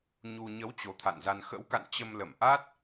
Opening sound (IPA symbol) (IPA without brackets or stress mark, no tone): ɲ